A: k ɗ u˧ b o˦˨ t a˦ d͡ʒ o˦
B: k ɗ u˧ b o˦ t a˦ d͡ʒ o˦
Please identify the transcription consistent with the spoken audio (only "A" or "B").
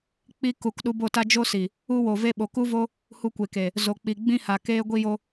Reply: A